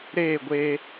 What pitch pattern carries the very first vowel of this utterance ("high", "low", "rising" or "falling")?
falling